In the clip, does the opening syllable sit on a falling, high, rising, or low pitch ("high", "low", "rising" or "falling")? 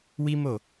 high